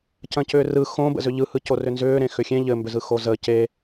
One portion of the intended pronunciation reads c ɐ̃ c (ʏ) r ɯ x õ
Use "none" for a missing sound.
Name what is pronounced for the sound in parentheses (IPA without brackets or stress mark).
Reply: ʏː